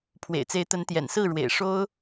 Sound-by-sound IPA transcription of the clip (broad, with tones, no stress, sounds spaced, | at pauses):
pʰ w ḛ˨˩ ɪ̯ t͡s e˨˦ ɪ̯ t̪ ə˨˦ n t̪ j ɛ̰˨˩ n s ɹ̩˥˨ ɻ w ḛ˨˩ ɪ̯ ʂ o˦ ʊ̯